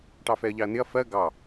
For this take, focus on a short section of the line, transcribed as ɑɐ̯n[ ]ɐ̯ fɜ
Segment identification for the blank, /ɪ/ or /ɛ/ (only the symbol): ɪ